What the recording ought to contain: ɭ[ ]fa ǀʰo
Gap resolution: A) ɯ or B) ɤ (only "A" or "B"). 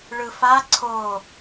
A